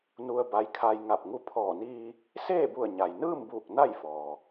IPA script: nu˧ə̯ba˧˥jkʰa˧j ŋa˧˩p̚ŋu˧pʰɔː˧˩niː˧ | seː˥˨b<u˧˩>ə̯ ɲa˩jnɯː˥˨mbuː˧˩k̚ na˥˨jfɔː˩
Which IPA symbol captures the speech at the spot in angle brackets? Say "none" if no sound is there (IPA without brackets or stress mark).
u˧˩